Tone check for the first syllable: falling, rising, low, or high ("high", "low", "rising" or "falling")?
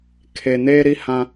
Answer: low